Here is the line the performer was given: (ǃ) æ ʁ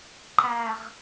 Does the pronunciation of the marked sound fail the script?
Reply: no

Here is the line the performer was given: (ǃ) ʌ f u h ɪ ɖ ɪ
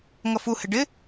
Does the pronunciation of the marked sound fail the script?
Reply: yes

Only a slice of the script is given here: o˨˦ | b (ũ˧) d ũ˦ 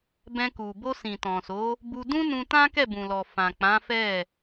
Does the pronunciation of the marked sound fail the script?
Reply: yes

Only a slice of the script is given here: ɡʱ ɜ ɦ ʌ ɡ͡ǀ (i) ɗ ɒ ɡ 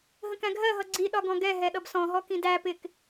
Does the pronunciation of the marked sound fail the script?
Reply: no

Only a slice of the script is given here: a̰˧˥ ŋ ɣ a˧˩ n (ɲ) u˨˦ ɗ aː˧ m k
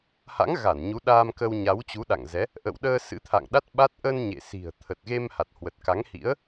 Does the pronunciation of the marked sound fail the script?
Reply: no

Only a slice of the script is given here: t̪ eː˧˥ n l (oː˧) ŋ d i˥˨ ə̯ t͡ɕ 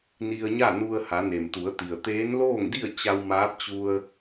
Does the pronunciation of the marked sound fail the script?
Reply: yes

